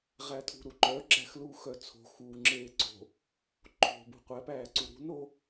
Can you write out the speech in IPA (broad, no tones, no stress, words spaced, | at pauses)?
ʁætʰṳ ɾuǃœ ɡ͡ǁæxluːxœt͡sʰo̤ xuːŋ͡ǁeːǀo̤ | ǃʰo̤ bṳqʷæp æːǀuɾṳn o